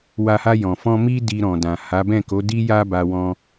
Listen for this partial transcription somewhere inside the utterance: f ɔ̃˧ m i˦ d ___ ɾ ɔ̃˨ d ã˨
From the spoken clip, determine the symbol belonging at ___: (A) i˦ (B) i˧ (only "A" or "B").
B